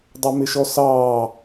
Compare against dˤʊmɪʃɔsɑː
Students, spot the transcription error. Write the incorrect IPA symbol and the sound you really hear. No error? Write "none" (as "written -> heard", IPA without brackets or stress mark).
none